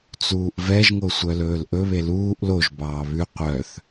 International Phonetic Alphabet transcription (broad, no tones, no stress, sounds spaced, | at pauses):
t͡s uː ʔ v ɛ ʒ ŋ o sʷ œ l ɵː l ʔ ɵ β e l uː ʔ l o ʒ b ɑː β ʉ qʷ œ θ